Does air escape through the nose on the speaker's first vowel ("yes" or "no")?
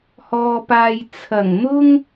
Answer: no